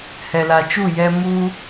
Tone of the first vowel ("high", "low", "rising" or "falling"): low